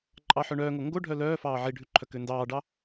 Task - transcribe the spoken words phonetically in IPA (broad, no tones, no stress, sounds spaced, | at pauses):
ǃʼ ɑ ħ œ ɳ œː ŋ o ŋ ɡ o ɖʱ œ l œː f ɑː ʕ i ɖʱ ʉ ǃʰ œ k ø n d ɑː ɖ ɑ